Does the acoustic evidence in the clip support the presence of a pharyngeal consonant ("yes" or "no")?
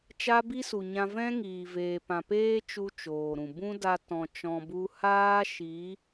no